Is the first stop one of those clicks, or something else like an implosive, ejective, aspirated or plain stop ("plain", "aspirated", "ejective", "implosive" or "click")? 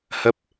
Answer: plain